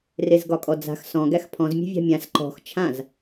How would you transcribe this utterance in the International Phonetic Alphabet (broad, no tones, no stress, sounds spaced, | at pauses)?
r e z ɡ ɒ kʼ ɔ d͡z a̤ x s ɔ̃ ɡ æ x pʰ ɔ̃ z mʲ e̤ vʲ a̤ mʲ ã s ǃ ɔ̤ x t͡ʃʰ ã z